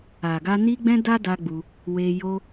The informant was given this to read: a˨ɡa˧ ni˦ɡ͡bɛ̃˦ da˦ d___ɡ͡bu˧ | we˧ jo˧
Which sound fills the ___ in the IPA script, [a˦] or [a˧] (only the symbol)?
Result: a˦